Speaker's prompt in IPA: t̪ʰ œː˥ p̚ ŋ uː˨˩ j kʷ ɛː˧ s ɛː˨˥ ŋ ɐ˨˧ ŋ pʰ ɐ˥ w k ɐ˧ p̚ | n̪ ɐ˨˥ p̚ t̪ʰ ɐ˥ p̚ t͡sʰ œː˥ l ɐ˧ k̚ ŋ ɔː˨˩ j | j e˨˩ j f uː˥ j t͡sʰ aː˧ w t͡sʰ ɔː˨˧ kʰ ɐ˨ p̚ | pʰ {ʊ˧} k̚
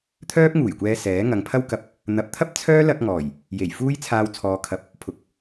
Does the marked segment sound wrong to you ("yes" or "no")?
yes